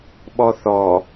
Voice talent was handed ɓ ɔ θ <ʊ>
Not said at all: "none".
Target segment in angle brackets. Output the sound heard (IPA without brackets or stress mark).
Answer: ɔ